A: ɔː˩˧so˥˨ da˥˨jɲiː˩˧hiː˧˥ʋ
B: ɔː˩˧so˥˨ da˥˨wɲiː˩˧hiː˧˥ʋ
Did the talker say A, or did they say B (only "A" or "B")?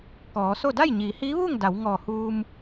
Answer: A